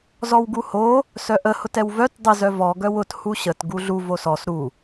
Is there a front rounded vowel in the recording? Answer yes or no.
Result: yes